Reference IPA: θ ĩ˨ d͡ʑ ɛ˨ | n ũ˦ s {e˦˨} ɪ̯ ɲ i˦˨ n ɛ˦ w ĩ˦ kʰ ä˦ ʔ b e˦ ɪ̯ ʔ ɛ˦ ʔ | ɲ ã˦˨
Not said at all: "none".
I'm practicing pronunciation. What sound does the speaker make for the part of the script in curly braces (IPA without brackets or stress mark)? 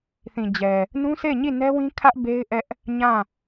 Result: e˦˨